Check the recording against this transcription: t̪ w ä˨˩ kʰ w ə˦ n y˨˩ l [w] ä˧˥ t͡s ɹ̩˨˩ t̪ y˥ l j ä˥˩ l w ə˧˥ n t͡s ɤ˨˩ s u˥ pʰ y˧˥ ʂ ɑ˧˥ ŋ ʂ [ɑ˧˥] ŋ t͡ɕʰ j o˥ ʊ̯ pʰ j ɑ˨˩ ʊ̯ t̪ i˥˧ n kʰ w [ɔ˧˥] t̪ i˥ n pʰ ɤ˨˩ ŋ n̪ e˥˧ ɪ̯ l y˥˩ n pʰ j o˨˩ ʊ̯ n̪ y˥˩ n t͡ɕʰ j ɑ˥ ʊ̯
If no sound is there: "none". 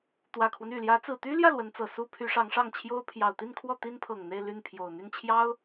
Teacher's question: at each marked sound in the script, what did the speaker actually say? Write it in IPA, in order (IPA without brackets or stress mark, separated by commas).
j, ɑ˥˩, ɔ˥˩